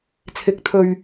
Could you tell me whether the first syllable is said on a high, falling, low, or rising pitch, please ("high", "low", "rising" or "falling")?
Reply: rising